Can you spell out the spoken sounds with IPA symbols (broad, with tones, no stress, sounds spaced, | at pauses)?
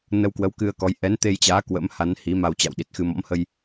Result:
n ə˧ w k w ə˨˦ w k ɨ˧ ə̯ k ɔ˨˦ j ʔ ɛ˨˦ n t̪ e˧ j t͡ɕ aː˨˦ k w ə̰˧˥ m h a˨˦ n h i˨˦ m a˧ w t͡ɕ a̰˧˨ w ɗ i˨˩ t̚ x ɨ˧ m ɔ̰˧˥ m h ə˧ j